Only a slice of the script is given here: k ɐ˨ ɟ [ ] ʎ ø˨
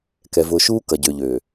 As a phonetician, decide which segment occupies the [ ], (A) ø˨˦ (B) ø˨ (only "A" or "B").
B